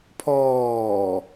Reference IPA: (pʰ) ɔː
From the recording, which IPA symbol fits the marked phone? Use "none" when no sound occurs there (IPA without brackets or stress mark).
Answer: pʰ